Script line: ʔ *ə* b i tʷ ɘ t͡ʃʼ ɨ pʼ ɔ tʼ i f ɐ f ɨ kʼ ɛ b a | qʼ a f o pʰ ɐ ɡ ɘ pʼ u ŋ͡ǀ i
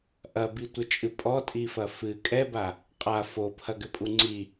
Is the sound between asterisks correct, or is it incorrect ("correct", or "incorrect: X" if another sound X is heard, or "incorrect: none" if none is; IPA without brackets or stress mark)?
incorrect: ɐ